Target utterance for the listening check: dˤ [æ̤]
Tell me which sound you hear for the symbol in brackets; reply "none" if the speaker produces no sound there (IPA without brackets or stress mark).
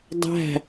æ̤